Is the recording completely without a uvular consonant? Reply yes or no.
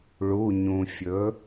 yes